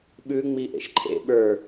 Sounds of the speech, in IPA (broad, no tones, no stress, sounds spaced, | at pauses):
ɓ ʉ ŋ͡m i ʔ ḛ ʃ ǃʰ ḛ ɓ ə˞